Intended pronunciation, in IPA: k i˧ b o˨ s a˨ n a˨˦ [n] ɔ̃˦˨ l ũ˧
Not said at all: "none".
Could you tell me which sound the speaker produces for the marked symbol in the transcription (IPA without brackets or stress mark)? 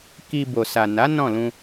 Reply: n